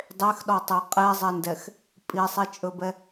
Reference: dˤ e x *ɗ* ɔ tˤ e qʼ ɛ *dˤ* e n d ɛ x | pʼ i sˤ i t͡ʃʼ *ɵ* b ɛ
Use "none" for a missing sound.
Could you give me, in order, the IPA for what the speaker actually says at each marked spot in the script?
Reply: ɗ, zˤ, ɵ

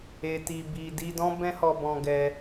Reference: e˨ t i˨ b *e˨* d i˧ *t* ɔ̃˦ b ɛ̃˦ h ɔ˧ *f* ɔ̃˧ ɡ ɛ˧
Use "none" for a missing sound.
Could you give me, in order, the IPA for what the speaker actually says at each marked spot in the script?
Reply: i˨, d, b

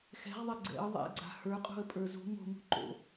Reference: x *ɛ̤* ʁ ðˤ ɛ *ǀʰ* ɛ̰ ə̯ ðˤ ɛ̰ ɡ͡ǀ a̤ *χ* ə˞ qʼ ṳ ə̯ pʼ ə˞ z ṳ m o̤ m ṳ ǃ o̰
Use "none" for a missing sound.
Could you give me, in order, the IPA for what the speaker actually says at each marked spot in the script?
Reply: ɛ̤, ɡ͡ǀ, h

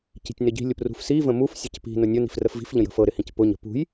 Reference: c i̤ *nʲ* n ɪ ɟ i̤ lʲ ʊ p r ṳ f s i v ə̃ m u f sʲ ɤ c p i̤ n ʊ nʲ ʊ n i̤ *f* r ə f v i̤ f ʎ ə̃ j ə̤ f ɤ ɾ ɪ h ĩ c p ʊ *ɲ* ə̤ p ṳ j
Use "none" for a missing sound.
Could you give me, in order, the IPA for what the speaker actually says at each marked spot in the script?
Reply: tʲ, f, ɲ

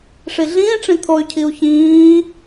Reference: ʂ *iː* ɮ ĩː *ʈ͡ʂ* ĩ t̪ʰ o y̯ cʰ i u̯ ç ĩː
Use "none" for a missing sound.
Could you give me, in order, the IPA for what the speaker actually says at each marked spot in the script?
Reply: i, ʈ͡ʂ

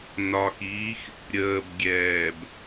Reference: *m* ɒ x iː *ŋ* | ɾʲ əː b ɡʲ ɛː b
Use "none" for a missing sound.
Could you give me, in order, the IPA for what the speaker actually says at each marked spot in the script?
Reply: n, x

